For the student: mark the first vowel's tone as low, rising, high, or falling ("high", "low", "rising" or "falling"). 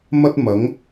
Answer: high